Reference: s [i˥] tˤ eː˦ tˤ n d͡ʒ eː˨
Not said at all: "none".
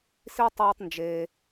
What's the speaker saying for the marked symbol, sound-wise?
i˥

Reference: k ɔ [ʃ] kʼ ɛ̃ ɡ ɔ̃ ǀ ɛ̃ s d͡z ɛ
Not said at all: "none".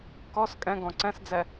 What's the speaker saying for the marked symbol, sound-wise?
s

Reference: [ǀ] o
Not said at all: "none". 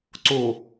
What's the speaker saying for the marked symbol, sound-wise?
ǀ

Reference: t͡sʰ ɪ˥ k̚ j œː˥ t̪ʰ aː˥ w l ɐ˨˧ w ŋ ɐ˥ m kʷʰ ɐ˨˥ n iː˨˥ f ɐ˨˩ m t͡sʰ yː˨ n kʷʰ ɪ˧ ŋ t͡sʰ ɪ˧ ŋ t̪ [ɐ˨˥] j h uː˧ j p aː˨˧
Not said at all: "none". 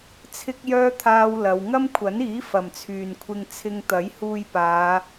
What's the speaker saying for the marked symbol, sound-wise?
ɐ˨˥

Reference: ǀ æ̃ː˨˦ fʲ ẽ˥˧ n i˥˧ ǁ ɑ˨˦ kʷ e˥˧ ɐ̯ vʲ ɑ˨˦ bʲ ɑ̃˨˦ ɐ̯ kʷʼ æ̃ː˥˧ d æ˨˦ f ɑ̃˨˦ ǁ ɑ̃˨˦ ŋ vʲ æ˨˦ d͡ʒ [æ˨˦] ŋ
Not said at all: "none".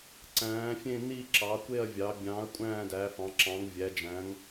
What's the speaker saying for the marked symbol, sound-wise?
æ̃˨˦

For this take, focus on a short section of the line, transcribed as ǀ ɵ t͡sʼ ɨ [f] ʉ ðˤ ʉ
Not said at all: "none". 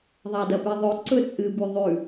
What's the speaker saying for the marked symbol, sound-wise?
b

